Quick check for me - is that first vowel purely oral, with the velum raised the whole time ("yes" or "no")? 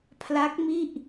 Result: yes